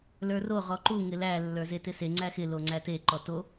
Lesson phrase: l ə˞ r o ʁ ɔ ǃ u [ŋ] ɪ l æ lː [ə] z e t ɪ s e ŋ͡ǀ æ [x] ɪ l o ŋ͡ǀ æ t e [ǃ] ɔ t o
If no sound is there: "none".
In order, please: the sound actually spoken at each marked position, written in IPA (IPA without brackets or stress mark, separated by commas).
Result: ŋ, ə˞, x, ǃ